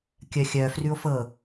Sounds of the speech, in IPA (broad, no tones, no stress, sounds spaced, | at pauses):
kʲ œ xʲ œ f r ʉ o̯ f ɤ